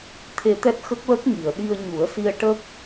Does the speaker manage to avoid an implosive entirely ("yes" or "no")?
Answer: no